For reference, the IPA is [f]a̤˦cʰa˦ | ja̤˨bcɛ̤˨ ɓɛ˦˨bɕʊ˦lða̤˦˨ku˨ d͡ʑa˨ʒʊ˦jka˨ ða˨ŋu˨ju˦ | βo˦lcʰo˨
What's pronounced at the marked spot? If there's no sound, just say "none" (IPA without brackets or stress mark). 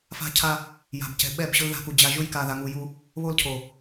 f